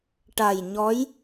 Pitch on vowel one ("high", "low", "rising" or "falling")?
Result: low